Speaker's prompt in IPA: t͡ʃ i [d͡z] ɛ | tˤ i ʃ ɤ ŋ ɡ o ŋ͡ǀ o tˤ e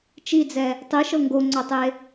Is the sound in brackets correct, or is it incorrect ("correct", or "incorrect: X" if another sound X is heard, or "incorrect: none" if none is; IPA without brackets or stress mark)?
correct